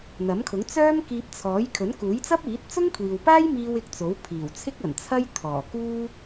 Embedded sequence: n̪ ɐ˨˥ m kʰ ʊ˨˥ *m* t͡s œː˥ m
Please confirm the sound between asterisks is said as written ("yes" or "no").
no